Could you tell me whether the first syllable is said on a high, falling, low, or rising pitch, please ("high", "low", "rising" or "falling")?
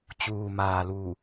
low